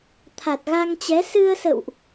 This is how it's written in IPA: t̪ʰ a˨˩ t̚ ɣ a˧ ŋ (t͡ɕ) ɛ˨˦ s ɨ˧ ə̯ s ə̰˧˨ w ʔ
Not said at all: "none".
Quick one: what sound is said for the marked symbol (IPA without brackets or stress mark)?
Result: t͡ɕ